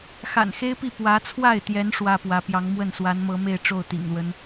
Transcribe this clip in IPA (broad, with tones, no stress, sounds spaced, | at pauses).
x a̰˨˩ n x e˥ ɪ̯ p i˥˩ p w ä˧˥ t͡sʰ w a˥˩ ɪ̯ t̪ j ɛ˧˥ n ʂ w ä˥ p w ä˧˥ p j ɑ˧˥ ŋ m w ə˥˩ n s w a˧˥ n m ɤ˧˥ m e˥˧ ɪ̯ ʈ͡ʂ o˥˩ ʊ̯ t̪ ḭ˨˩ ŋ l w ə˦ n